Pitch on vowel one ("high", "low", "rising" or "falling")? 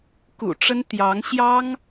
low